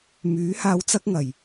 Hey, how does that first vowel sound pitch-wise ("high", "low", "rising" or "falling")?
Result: rising